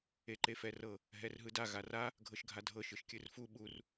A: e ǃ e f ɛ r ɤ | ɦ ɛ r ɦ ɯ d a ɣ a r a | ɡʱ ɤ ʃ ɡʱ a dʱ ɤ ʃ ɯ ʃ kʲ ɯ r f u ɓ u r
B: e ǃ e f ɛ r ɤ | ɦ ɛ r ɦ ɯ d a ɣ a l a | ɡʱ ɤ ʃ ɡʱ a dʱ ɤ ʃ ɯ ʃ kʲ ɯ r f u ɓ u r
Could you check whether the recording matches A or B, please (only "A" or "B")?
A